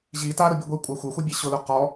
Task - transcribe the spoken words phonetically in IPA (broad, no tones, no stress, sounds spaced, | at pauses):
ʑ i t a ɾ ʊ bʲ u ɡʷ i kʷʼ a xʷ e xʷ e bʲ e ɕ ʊ l ʊ q ɔ